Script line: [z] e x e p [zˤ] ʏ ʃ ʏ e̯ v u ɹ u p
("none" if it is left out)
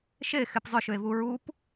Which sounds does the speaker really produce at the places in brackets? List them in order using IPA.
ʃ, zˤ

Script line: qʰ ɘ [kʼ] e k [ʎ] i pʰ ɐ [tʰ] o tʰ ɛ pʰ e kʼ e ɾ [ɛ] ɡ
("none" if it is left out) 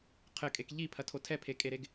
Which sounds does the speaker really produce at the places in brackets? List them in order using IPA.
kʼ, ʎ, tʰ, e

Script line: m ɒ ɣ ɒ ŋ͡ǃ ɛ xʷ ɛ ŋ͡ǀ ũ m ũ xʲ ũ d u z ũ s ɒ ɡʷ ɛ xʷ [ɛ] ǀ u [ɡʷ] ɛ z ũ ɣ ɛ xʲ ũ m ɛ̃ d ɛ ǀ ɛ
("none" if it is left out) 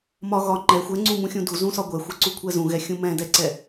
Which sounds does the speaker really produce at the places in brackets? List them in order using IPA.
ɛ, kʷʰ

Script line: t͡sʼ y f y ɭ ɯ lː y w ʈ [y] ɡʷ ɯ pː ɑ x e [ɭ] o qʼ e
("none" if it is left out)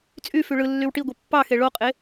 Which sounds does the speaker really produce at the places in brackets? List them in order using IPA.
i, ɭ

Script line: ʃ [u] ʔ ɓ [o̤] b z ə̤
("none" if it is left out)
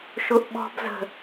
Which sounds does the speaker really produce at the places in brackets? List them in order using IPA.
ʊ, ɔ̤

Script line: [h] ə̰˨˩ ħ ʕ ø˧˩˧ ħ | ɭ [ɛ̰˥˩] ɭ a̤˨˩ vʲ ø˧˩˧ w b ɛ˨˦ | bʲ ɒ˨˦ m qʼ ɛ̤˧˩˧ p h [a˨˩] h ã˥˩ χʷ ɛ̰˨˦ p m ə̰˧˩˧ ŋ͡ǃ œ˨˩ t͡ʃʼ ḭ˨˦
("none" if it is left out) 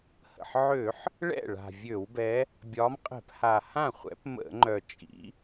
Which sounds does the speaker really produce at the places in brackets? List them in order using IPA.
h, ɛ̰˥˩, a˨˩

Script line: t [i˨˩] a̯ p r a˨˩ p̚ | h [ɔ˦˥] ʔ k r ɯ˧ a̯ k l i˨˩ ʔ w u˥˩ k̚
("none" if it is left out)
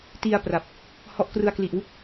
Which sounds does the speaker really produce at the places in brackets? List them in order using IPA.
i˧, ɔ˦˥

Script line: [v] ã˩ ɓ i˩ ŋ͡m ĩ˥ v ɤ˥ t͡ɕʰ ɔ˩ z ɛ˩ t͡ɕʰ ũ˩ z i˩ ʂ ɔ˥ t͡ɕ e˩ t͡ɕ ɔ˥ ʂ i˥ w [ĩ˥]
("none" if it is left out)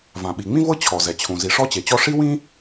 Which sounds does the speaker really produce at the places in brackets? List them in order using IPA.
v, ĩ˥

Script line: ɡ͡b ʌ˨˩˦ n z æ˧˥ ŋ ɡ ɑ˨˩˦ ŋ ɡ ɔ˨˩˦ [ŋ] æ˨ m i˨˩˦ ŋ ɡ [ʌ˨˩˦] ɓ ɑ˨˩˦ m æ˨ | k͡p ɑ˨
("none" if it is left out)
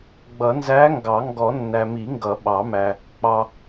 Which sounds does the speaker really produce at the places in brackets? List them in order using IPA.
nː, ʌ˨˩˦

